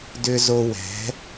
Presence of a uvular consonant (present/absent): absent